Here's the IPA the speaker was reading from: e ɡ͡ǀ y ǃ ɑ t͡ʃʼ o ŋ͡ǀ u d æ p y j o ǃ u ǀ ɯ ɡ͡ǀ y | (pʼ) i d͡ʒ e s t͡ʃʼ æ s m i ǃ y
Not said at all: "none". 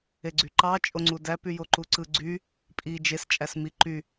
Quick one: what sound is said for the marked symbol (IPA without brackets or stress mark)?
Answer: pʼ